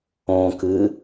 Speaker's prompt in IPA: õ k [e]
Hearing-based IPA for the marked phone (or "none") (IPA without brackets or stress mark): ɨ